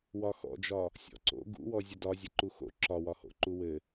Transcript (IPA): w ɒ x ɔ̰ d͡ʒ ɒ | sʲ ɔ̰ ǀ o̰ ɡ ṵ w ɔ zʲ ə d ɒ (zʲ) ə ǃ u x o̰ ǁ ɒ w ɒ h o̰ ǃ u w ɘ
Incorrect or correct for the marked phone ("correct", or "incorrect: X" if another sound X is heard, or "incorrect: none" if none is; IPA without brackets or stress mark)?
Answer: correct